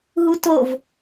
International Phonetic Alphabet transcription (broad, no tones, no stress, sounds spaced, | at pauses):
ɦ u t o v